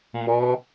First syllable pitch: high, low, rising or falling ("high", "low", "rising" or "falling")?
high